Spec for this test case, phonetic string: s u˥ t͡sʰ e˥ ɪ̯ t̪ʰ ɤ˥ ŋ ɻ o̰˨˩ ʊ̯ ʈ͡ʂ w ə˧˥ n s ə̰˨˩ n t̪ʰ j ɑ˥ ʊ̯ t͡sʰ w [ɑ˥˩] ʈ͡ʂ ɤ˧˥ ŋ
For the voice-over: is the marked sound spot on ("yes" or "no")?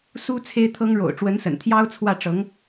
no